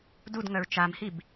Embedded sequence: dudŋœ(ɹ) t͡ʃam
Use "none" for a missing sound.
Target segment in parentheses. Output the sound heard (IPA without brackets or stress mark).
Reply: ɹ